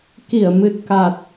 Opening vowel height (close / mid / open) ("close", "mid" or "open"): close